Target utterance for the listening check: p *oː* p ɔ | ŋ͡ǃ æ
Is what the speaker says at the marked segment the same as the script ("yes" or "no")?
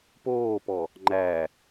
yes